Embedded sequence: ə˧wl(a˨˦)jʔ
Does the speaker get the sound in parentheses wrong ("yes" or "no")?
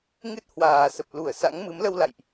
yes